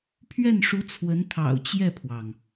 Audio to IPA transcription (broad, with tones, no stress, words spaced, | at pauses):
pʰɥɛ˥˩nʂu˧˥ t͡sʰwə˧˥nt̪ʰɑ̰˨˩ʊ̯ t͡ɕjɛ˥˩pʰwɑ˩ŋ